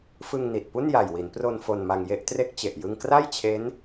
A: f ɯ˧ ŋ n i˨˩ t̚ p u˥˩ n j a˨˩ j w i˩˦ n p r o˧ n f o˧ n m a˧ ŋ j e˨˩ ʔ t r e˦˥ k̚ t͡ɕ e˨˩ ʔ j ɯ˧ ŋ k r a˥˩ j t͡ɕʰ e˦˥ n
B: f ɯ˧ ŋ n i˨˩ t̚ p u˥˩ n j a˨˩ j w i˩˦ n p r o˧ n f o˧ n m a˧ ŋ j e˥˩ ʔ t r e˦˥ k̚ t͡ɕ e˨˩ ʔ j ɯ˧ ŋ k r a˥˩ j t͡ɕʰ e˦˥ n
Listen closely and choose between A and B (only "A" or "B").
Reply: B